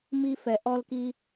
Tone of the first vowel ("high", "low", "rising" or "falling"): high